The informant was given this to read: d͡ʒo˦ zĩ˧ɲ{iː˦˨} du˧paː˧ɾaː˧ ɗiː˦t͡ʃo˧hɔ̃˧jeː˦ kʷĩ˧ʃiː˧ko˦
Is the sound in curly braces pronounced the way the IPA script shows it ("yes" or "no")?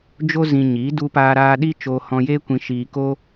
no